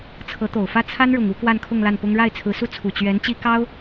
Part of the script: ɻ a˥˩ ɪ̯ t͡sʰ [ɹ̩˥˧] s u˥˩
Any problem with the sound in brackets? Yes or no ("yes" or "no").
yes